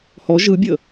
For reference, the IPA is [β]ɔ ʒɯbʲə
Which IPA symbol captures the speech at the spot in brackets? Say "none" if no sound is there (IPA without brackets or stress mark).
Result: h